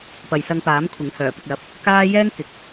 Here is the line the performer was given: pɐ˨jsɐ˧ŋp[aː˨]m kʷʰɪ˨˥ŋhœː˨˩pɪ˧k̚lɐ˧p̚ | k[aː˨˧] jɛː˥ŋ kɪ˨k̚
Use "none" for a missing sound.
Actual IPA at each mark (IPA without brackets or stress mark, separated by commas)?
aː˨˥, aː˥